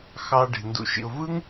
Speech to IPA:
x ɑ˧ ɖ e̤˨ n d ṵ˨ ʃ ḭ˨ ʊ̯ v ɯ˦ ŋ

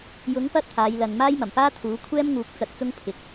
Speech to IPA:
j ʊ˨˥ ŋ p ɐ˥ t̚ t̪ʰ aː˨˧ j l ɐ˨ n m aː˥ j m ɐ˨˩ m p aː˥ t̪ʰ uː˨˥ kʷʰ ɛː˥ m ŋ uː˨˥ k̚ t͡s ɐ˧ k̚ t͡s ʊ˥ ŋ pʰ ɪ˨ k̚

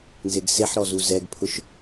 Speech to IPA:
n z e ɡ s e ħ ɾ ɔ z u z ɛ ɡ pʰ ʊ ʃ

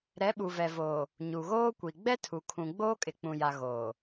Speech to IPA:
ɾ ɛ˨˦ ɓ u˨ v ɛ˨ v oː˨ | ɲ u˨ ɣ oː˦ kʷ i˨ ɡ͡b ɛ˦ tʰ u˨ kʰ ũ˨ ɡ͡b oː˦ kʼ ɪ˨ k͡p ũ˨ j a˨ ɣ oː˨

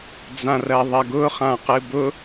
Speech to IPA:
d͡z ã r ɜ ðˤ ɜ ɡ ʊ χ ã q ɨ b ʊ

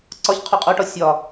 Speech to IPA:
ǀ ɒ ç qʰ o qʼ o ʈ ɒ sʲ ɒ

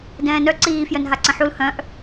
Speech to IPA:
d ɛ̃ː n œ ǀ iː f j œ n ɦ a ǀ ə̃ ħ u l h œ̃ ʔ

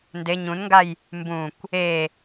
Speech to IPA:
n d e ɲ ũ n ŋ ɡ a j | m b ũ kʷ | e

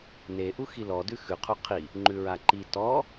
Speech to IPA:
n e ʔ u x i l ɔ d ʉ x ʉ qʰ u qʰ i | ŋ͡ǃ ʉ ɹ a ǃ i t ɔ

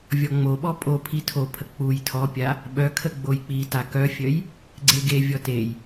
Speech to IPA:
vʲ ɔ ŋ͡m o ɓ ɔ pʼ o pʰ i tʰ o pʰ ə k͡p u j tʰ ɔ pʲ a | ɓ œ kʰ ə ɡ͡b o j k͡p i t a k œ fʲ œ j | ɡ͡ǀ e ɡ e vʲ ɔ t e j

